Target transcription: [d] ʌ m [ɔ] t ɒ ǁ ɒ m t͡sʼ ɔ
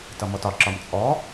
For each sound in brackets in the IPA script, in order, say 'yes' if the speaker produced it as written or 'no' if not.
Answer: no, yes

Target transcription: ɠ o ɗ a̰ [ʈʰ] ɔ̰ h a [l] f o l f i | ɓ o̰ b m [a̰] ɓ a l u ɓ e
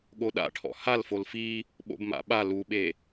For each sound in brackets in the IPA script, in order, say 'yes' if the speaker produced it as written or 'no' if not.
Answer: yes, yes, yes

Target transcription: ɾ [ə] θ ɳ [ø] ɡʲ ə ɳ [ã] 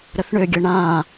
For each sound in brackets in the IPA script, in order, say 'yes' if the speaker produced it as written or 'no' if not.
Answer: yes, yes, yes

